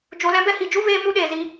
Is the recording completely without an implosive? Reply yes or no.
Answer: no